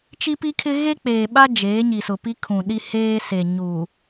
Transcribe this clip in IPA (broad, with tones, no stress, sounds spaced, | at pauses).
t͡ʃ i˦ p i˦ kʰ ɪ˦ ɣ e˦ k͡p eː˨ ɓ a˦ d͡ʒ eː˨˦ ɲ i˨ s ʊ˨ p i˦ kʰ ũ˨ ɗ i˦ h eː˦ s e˨ ɲ u˨